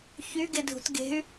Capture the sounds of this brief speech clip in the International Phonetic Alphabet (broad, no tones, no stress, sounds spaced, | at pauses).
ç y ɡ e dʱ ṳ t ɡ e̤ y̯